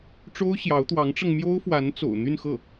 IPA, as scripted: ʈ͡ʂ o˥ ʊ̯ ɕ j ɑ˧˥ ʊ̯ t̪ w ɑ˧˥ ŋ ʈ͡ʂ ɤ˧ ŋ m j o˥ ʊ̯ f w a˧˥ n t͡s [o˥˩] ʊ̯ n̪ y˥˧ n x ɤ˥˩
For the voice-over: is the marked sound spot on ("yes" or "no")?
no